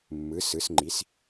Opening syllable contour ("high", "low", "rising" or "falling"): rising